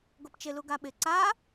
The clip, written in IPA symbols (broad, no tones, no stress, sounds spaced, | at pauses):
ɡ o p t͡ʃ ɪ l u ɡ a ɓ ɪ ǀ a